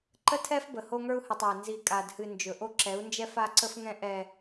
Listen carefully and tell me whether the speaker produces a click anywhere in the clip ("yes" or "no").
yes